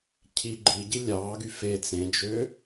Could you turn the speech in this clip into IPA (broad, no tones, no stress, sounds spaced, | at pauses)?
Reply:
cʰ i ɡ͡ǃ i ɟ i lʲ ɑː ɡ y f e t͡s ẽ d͡ʒ ø